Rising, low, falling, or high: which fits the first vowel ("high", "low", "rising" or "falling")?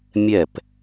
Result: falling